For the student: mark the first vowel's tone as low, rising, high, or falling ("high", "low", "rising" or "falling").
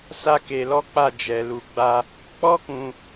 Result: high